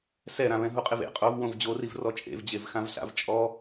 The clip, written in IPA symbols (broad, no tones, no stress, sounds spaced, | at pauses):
s ɛ ɾ ã β ɛ̃ ɦ u qʼ ɪ v ḛ qʼ o v w õ v d͡ʑ o r i v r ɔ t͡ʃʼ ḛ v d͡ʑ e v x ã v ɬ a̰ v t͡ʃʼ ɔ